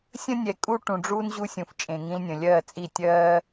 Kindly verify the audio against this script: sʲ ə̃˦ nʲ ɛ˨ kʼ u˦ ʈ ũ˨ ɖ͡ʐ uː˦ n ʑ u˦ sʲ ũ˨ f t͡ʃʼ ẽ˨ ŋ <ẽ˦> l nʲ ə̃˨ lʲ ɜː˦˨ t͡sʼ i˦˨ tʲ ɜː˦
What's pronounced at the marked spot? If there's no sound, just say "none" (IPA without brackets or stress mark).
ĩ˦